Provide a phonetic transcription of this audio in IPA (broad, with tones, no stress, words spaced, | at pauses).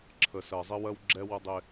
ǁʰə˨sɜ˨zˤɪ˦wɜ˦w ɡ͡ǁɛ˦wə˦dˤɪ˦